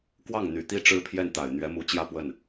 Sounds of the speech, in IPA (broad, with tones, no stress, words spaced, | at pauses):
kwɑ˥˩ŋn̪y˨˩t̪i˥˩ ʈ͡ʂɻ̩˥pʰjɛ˥˩nt̪a˨˩ɪ̯ n̪ɥɛ˧˥mu˧˥t͡ɕjä˥˧ pwə˥˩n